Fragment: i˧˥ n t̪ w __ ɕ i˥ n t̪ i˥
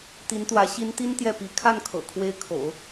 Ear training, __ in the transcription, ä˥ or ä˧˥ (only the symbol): ä˧˥